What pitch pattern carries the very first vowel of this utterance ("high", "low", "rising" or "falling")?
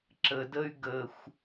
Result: low